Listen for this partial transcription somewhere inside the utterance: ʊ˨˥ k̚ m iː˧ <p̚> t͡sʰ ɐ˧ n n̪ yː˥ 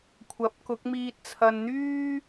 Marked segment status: incorrect: t̚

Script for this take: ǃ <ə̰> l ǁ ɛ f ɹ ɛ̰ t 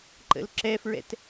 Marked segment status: correct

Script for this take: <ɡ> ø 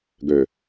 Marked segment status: correct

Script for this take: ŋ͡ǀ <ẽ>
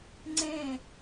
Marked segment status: correct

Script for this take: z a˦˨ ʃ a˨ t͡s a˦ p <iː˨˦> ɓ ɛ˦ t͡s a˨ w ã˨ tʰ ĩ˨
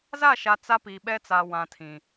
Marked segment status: incorrect: iː˨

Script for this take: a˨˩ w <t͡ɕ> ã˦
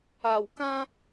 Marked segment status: incorrect: k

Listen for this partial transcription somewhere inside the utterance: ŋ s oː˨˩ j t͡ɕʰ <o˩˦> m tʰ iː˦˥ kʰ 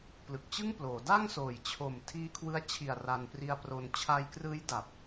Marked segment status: incorrect: o˨˩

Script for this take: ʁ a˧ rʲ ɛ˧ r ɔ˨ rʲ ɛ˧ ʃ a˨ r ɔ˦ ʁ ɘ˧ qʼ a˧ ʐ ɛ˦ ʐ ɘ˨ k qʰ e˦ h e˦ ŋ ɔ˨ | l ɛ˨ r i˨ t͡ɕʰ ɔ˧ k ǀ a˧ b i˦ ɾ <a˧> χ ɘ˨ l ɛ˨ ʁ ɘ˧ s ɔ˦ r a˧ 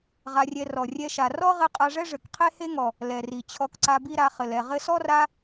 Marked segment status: correct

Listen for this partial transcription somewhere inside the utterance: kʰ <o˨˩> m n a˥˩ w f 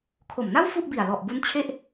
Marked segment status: correct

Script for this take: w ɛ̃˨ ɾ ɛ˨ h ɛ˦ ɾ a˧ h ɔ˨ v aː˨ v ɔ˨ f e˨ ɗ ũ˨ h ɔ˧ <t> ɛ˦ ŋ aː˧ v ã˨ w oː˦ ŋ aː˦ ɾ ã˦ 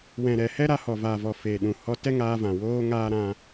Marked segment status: correct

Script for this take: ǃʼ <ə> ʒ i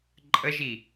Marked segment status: correct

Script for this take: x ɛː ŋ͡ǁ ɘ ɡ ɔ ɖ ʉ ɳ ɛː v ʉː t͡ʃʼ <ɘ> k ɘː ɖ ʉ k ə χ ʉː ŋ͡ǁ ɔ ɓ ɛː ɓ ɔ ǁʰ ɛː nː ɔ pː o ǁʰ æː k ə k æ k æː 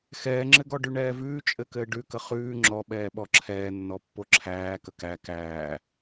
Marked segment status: correct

